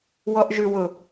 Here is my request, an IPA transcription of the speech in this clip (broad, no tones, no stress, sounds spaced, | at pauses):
w ɔ ʔ ʒ ʉ w ʊ